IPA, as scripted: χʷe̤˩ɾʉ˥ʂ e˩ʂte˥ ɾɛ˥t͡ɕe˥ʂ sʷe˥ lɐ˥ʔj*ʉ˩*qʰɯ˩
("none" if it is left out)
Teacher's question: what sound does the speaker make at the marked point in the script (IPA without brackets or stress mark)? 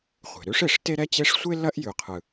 ʉ˩